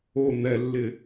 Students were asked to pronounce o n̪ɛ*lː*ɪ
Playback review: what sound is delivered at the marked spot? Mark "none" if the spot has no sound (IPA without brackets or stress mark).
lː